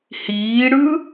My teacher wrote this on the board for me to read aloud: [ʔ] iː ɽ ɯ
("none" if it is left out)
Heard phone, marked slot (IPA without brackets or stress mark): h